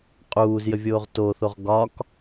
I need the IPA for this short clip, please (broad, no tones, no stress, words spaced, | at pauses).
qʼuːzjəvʲoːʁ toθoʁ ɡɒk